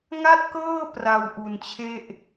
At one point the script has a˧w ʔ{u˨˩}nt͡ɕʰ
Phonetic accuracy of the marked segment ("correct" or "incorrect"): correct